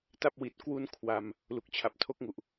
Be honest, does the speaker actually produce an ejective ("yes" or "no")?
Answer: no